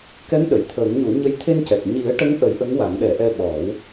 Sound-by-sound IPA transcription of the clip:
kɛ˧˥m ɗə˨˩˨jt̪ʰəː˨˩˦ŋɲu˨˩˦ɲə˧j t̪ʰe˧ncɛ˨˩k̚ ɲi˨˩˦ə̯ ʈə˧˥ŋʔə˨˩˦j ʔə˧˥ŋwa˨˩˦ŋɗɛ˨˩˦ ʔɛ˧ɓɔ˨˩˦w

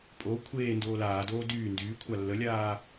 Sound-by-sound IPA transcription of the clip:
pʼo kʷʰeː ndoːlaːdoː dyː ndyː kʷʰalːəlʲaː

